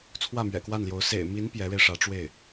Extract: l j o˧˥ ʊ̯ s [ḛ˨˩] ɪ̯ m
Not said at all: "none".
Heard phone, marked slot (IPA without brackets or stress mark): ḛ˨˩